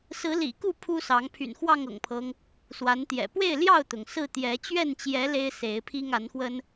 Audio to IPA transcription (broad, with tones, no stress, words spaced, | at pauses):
sɹ̩˨˦lḭ˨˩ku˥˨ pʰu˦sɑ˨˦ŋ pʰy̰˨˩nxwɑ˥˨ŋɤ̰˨˩ŋpʰɤ˦ŋ | swa˨˦nt̪jɛ̰˨˩ pwe˥˨ɪ̯ljɑ˥˨ʊ̯t̪ʊ˩ŋ sɹ̩˥˨t̪jɛ˨˦ t͡ɕɥɛ˥˨nt͡ɕjɛ˨˦ le˦ɪ̯se˨˦ɪ̯pʰi˦ŋ a˨˦nxwə˦n